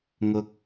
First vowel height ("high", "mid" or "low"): high